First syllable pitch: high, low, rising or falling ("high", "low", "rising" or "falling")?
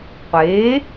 rising